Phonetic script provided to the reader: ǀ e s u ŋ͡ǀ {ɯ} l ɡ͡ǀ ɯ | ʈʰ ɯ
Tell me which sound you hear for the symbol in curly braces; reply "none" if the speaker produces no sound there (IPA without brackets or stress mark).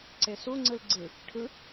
ɯ